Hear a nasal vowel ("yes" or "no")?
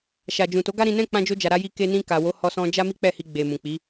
yes